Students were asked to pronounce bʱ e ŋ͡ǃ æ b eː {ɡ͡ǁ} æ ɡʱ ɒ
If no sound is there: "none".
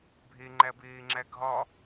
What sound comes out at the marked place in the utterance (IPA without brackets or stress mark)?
ŋ͡ǁ